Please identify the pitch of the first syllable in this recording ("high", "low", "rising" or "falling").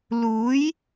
rising